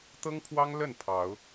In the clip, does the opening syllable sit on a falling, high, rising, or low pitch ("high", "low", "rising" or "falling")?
high